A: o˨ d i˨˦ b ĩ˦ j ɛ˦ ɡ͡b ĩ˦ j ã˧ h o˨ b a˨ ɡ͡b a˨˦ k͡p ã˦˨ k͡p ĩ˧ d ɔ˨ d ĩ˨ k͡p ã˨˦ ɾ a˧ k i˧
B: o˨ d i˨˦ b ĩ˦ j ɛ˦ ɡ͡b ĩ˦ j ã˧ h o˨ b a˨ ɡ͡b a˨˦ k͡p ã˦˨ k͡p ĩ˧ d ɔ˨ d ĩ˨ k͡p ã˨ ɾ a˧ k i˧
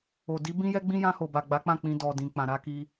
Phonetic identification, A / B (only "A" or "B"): B